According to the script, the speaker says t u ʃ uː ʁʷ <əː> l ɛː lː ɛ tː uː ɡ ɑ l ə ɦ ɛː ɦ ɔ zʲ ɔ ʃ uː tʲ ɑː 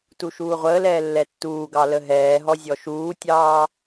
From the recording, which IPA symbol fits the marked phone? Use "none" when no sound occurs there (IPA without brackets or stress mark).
əː